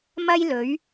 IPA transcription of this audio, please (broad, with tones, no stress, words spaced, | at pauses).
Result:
mɐ˥jlɵ˨˥ɥ